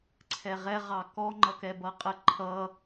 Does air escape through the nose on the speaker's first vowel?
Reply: no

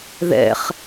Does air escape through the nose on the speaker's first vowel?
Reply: no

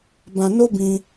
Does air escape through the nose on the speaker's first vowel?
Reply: yes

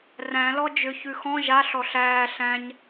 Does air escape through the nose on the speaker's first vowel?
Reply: yes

